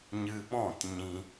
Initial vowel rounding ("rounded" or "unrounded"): unrounded